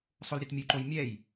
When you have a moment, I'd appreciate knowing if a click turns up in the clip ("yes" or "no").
yes